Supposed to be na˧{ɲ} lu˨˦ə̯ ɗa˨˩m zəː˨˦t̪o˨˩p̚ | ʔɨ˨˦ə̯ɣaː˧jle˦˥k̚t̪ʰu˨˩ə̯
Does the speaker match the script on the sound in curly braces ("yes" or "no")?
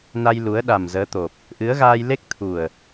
no